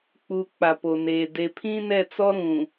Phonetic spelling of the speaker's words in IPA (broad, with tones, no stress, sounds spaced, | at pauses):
k͡p u˨ k͡p a˨ p o˨ n eː˨ d e˨ pʰ ĩ˦ n ɛ˦˨ t͡s ɔ˦ ɾ ũ˨